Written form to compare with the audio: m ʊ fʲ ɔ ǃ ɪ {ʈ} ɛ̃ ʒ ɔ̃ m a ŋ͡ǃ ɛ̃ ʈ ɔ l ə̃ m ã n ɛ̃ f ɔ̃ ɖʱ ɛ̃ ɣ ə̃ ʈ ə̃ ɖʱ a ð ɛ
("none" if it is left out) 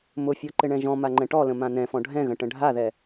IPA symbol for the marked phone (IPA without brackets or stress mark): ɳ